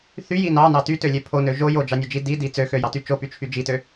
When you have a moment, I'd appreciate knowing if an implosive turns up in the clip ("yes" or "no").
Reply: no